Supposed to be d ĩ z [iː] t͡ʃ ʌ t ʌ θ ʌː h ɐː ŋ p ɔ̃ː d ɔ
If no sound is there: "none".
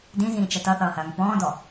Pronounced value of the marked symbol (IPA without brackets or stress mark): ĩː